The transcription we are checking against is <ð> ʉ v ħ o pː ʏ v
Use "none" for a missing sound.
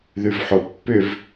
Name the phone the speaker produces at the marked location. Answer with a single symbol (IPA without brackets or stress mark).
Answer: ð